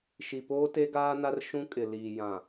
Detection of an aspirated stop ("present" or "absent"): absent